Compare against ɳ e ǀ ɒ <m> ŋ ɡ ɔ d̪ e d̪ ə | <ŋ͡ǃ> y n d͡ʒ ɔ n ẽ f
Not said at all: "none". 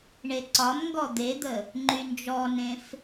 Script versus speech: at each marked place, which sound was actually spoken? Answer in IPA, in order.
m, ŋ͡ǃ

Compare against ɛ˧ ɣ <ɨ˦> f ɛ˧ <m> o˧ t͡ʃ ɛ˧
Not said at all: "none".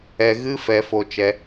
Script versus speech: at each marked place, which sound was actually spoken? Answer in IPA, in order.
ɨ˦, f

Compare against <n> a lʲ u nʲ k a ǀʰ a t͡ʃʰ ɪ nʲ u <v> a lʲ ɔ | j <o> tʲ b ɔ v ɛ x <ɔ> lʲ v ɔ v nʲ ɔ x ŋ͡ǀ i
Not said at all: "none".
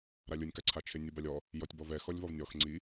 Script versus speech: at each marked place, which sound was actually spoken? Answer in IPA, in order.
ɾ, b, ɔ, ɔ

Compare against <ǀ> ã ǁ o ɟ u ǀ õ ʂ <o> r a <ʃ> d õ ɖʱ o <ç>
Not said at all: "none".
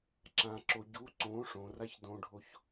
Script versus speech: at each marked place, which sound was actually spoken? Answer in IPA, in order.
ǁ, õ, ç, ç

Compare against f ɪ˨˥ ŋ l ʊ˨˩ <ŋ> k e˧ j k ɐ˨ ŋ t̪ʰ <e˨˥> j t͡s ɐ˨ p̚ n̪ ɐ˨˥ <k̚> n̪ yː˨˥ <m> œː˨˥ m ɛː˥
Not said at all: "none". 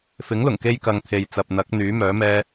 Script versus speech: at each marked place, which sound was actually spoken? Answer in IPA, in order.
ŋ, e˨, k̚, m

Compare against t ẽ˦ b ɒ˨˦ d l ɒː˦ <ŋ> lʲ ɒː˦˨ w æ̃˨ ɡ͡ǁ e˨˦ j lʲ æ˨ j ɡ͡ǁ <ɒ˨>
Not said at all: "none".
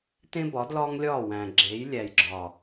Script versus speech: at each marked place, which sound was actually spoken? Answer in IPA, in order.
ŋ, ɒː˨

